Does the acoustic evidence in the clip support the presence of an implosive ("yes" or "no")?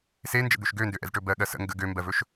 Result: yes